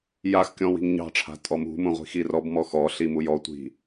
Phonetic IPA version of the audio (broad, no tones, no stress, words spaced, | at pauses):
jaxkʲɔ̃ wi̤ŋɲɑ̤ʈ͡ʂʰa̤ tʼɔmṳmũ ʁʷi̤xirɔbmɔ xɔɬi mujɔtʷi̤